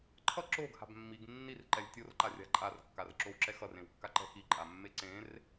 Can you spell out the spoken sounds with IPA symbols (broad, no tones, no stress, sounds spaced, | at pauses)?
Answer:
ǃʰ ʌ ǁ o ɡ h a̤ b mː i ɡ nː i r ǃ ɛ lʲ tʲ o r ǃ a rʲ a̤ ǃʼ a r kː a r ǁ o w ǁ ɛ x ʌ r ẽ w kː a ǃ ɛ̤ x i ǃʼ a mː e ǀ ẽ r